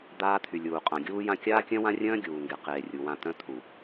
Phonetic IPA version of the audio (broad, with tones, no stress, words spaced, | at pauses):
d̪aː˦t̪ʰy˨lʲuː˨ qʼã˨ɡʲuː˦jã˦ kʲaː˦kʲœ̃˦wã˦rʲœ̃ː˦ ɡʲuː˨ŋɡe˨ qeː˨rʲu˨wã˦˨ t̪œ̃˦t̪ʰu˨